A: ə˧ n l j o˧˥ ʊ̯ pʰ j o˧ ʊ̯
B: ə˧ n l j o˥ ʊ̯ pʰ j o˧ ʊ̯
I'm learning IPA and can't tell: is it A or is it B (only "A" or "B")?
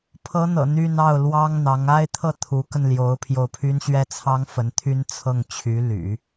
A